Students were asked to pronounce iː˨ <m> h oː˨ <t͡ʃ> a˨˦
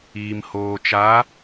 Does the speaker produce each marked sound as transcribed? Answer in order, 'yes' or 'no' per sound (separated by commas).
yes, yes